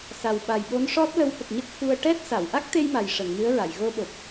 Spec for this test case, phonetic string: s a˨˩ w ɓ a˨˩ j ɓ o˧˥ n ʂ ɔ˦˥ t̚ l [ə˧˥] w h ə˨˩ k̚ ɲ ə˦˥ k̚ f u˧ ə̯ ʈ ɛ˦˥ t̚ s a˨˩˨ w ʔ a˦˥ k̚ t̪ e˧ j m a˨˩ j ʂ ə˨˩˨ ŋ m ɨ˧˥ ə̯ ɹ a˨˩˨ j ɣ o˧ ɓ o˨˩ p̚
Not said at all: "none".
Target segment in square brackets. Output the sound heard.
ə˧˥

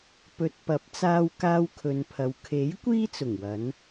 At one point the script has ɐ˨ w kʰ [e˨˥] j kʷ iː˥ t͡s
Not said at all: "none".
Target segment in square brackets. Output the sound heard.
e˨˥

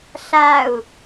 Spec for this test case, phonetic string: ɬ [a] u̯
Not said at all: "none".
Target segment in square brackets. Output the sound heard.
a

